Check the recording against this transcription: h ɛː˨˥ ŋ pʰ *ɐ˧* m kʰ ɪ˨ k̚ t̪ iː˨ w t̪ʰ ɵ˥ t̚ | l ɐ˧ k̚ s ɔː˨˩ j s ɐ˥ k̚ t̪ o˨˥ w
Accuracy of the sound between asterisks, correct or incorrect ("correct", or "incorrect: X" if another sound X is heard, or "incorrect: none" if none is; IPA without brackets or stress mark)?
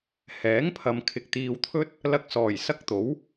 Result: incorrect: ɐ˨